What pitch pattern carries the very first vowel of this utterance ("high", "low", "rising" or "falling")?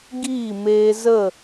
falling